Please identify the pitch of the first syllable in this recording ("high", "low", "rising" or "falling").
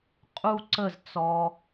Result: high